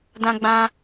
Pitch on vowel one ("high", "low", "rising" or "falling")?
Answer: high